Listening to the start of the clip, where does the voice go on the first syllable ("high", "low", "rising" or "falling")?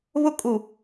falling